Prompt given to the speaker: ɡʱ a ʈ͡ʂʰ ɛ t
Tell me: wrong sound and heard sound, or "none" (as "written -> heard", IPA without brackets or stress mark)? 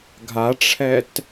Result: none